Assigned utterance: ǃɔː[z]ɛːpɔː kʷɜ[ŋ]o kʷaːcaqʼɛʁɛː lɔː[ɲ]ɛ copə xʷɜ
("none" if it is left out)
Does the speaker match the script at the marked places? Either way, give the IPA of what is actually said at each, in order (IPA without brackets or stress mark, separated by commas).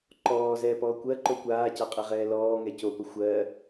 z, ǃ, ŋ